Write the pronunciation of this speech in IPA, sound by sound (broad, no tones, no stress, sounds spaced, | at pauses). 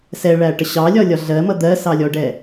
s ɛ ɭ æ ʈ ə ɕ ɑ lʲ ɒ lʲ ɒ ɮ ɜ m ʌ d̪ ɜ s ɑ lʲ ɔ ɖ ɛ